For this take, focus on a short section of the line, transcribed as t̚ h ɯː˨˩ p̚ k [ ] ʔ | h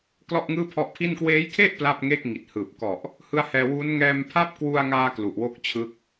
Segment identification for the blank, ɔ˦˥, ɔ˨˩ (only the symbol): ɔ˨˩